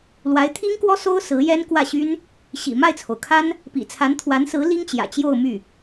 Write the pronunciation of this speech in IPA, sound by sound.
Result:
l w a˧˥ ɪ̯ t̪ʰ i˥ ŋ k w ɔ˥ s o˥ ʊ̯ s ɹ̩˧˥ j ɛ˥ n k w ä˥˩ ɕ y˥ n | ɕ ḭ˨˩ m a˥˩ ɪ̯ t͡sʰ o˩ ʊ̯ kʰ a˥ n | p ḭ˨˩ t͡sʰ a˧˥ n t̪ʰ w a˧˥ n s ɹ̩˧˥ l i˥ ŋ t͡ɕ j ä̰˨˩ t͡ɕ j o˥˧ ʊ̯ m y˥˩

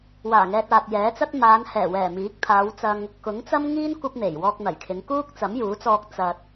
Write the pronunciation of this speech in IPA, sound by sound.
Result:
w aː˨˩ ŋ ɛː˧ t̚ aː˨ t̚ j ɛː˨˥ t͡s ɐ˥ t̚ m aː˨˧ n h ɛː˨˩ w ɛː˨˩ m iː˨˥ k̚ t̪ʰ aː˨˧ w t͡s ɐ˧ ŋ | k ʊ˨˥ ŋ t͡s ɐ˥ m ŋ iː˥ n kʷ ɐ˥ p̚ n̪ e˨˩ j w ɔː˧ k̚ n̪ ɐ˨˩ j kʰ ɪ˨˧ ŋ k uː˥ k̚ t͡s ɐ˨˥ m j uː˨˥ t͡s ɔː˧ k̚ t͡s ɐ˨ t̚

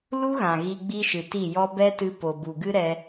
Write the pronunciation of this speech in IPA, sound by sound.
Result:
l u˦ ɣ ã˨ ɣ i˧ ɡ͡b i˦ ʃ ɨ˨ t i˦˨ j ɔ˦ b ɛ˦ t ɨ˧ p o˨ b u˨ ɡ ɨ˦ ɾ ɛ˧

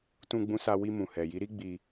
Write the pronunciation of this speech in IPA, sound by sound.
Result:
t ũ˧ ɡ͡b ũ˧ s a˧ w i˧ m ũ˨ h ɛ˨ j i˨˦ ɾ i˦ ɡ͡b i˧

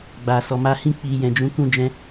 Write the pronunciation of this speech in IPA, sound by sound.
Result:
ɡ͡b a˨ s ɔ˨ m a˨˦ h ĩ˦˨ k͡p i˨ j ɛ̃˨ d͡ʒ ũ˨˦ k ũ˦˨ d͡ʒ ɛ̃˧

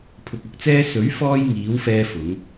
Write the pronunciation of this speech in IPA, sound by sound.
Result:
pʰ ʊ˧ k̚ ɐ˧ k̚ t͡s ɛː˥ s ɵ˨˥ ɥ f ɔː˧ j ŋ iː˨˥ w f ɛː˧ f ʊ˨˥ ŋ

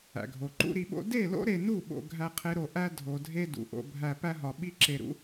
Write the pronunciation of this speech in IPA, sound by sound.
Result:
æ̰˨ ɡʱ o˨ ǃ ṵ˦ ɾ i˧ ɓ o̰˦ d e˦˨ l o̰˦ ɾ e˧ n u˦˨ ɓ o̰˧ ɡʱ æ˦ qʰ e˦ ɾ o˧ ʔ æ˦ dʱ o˨ dʱ e˦ d ṵ˨ ʔ o̰˧ bʱ æ˧ p æ˦ ɦ ɒ˨ ɓ i˦ ǁ e˧ ɾ ṵ˦

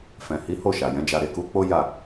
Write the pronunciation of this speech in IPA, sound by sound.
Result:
f ɛ̃˨ h i˨˦ h o˦˨ ʃ a˨ j ɛ̃˨˦ d͡ʒ a˧ ɾ e˨ k u˨˦ k͡p o˦ j a˦˨

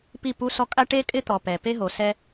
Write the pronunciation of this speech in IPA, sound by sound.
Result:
p i˦˨ p u˦ s ɔ˦ kʼ a˦ ʈ e˦ kʼ ɪ˦ t̪ ɔ˨ p ɛ˨ p e˦ ɦ o˨ s ɛ˦

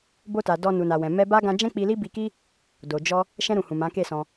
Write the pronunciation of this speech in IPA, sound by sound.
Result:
b o˧ t a˨ d ɔ˧ n u˨ n a˨ w ɛ̃˨ m ɛ˧ b a˦ ɡ ã˧ d͡ʒ ɛ̃˦ k͡p i˧ l i˦ b i˧ k i˦ | d o˨ d͡ʒ ɔ˧ | ʃ ɛ̃˧ ɾ ũ˨ h ũ˨ m ã˨˦ k e˦˨ s ɔ̃˧

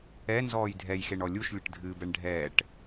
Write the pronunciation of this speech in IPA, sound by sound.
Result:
ɛ n z ɔː j dʱ ɛ j x e ɳ ɔ lʲ u ʃ lʲ ɘ ʈ dʱ ɨ b ɛ ɳ ɖʱ ɛː ʈ

